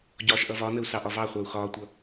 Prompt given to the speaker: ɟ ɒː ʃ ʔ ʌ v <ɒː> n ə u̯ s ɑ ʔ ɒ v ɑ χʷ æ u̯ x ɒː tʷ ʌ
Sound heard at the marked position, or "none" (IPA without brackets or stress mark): ɒ